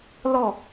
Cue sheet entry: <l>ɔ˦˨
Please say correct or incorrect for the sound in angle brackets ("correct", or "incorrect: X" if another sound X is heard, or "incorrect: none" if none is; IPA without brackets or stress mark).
correct